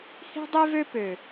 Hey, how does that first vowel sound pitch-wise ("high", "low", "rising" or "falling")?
high